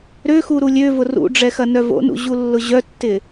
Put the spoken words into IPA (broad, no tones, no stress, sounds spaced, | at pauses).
ɾ ø x u ɾ u lʲ ø v ʊ r ṵ ɖ͡ʐ ɛ x ɐ n œ v o̰ n ṵ ʑ u lː ʊ ʑ œ tː ɪ